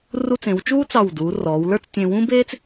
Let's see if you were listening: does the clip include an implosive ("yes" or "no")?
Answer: no